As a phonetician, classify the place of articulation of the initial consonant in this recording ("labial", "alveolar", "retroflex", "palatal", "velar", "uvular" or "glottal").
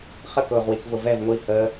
uvular